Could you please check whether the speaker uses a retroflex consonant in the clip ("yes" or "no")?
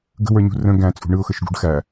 yes